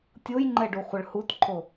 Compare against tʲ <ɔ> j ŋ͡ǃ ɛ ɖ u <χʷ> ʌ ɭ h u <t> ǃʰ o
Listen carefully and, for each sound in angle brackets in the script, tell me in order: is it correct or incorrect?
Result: incorrect: o, correct, correct

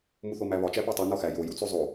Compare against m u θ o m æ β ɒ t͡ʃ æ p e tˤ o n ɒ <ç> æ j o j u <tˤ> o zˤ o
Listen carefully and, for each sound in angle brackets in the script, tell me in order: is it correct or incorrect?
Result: incorrect: x, incorrect: t͡s

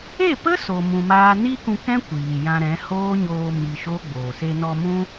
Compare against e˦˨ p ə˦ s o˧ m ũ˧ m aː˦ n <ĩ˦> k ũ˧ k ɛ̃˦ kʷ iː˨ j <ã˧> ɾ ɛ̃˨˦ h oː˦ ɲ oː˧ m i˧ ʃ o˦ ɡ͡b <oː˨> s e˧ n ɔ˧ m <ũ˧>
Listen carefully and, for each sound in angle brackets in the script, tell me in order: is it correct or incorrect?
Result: incorrect: i˦, correct, correct, incorrect: ũ˦

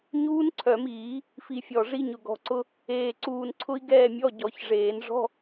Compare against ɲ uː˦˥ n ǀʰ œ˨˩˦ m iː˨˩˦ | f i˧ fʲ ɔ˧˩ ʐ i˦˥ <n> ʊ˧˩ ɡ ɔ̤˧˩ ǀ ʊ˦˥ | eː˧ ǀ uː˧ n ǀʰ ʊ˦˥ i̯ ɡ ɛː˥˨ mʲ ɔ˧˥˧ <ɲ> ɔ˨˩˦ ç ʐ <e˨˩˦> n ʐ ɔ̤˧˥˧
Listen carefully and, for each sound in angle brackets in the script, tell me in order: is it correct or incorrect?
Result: incorrect: ɲ, incorrect: ɟ, incorrect: eː˨˩˦

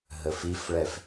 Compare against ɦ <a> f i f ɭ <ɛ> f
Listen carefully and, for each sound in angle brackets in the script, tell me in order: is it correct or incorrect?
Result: incorrect: ə, correct

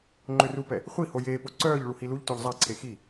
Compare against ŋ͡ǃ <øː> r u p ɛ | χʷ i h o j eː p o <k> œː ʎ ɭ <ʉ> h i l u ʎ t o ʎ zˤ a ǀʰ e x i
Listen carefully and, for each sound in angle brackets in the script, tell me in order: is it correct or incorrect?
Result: incorrect: ø, incorrect: ǀ, incorrect: u

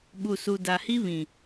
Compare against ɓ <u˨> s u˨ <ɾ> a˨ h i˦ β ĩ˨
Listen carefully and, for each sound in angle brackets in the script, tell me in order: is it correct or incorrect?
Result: correct, incorrect: d

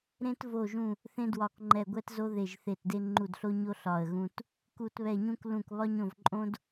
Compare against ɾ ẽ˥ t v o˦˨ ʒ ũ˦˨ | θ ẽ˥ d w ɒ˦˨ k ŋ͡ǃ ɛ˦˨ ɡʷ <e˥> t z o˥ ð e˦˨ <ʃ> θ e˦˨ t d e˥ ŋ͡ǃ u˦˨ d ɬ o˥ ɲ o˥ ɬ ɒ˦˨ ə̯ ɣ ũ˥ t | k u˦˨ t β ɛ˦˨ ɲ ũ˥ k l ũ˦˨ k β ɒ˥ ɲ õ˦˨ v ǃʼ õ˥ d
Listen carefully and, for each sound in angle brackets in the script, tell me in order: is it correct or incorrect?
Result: incorrect: ɛ˥, incorrect: ʒ

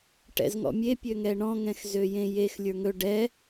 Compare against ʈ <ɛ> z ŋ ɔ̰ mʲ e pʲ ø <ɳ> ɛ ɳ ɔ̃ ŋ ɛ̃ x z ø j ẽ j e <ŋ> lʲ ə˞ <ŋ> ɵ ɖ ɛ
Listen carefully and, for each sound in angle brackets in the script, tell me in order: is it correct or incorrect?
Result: incorrect: ɛ̰, incorrect: ŋ, incorrect: x, correct

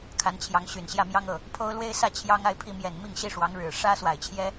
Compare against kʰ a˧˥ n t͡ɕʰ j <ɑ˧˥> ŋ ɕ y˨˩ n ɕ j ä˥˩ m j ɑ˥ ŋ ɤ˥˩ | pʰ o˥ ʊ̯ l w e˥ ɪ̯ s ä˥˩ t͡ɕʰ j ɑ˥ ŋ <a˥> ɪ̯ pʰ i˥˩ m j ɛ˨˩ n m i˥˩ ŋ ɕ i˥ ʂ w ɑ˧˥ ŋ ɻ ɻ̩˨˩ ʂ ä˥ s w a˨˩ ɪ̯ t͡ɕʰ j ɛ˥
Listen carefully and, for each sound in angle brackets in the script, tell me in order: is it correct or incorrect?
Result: correct, incorrect: a˥˧

